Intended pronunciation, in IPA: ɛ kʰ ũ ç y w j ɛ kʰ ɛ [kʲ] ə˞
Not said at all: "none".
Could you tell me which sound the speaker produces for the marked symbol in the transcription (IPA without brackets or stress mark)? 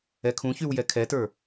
t